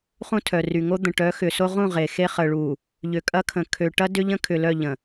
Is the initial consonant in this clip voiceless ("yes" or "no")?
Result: yes